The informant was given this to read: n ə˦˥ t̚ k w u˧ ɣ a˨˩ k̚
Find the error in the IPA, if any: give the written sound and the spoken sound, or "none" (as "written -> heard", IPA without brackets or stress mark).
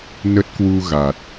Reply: k̚ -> t̚